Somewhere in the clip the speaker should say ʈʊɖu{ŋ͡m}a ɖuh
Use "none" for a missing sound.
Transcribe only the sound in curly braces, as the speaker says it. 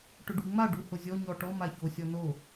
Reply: ŋ͡m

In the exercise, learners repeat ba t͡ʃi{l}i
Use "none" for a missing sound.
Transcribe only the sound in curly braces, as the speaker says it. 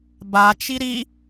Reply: ɾ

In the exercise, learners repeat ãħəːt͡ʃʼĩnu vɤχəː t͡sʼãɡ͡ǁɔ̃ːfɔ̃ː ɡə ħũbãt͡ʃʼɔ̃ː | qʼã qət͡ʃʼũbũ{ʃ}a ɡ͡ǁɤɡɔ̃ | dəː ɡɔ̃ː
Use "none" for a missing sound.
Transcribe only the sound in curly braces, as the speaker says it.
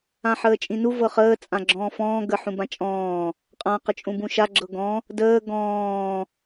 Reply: ʃ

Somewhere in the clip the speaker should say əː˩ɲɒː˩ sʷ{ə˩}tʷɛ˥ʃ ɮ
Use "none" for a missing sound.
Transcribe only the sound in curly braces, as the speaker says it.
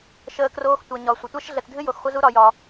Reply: ə˩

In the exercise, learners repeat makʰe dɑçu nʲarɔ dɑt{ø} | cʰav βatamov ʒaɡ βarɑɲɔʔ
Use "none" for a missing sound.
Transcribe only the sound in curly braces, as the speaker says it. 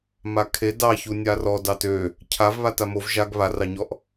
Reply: ø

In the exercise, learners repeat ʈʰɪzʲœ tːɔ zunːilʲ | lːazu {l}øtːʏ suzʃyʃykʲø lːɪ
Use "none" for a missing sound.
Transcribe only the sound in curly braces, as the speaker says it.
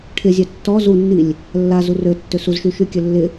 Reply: r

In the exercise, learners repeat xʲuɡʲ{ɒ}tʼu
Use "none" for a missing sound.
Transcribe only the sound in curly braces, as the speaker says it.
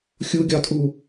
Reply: ɒ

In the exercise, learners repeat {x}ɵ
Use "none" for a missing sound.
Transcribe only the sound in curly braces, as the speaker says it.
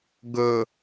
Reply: ɡ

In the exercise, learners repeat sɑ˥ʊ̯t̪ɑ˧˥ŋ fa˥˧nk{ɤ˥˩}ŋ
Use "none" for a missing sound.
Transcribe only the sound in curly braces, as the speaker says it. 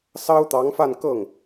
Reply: ɤ˥˩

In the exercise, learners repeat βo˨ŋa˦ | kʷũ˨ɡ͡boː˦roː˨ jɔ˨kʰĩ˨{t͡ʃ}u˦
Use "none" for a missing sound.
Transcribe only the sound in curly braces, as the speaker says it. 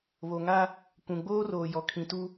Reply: t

